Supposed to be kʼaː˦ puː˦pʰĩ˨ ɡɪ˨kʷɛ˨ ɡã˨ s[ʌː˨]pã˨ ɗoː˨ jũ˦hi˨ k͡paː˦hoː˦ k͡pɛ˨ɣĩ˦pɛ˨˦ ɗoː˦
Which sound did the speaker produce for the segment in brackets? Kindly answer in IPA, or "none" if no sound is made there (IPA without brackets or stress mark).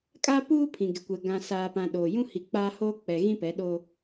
aː˨